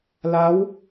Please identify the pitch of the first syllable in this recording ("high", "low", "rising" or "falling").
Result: rising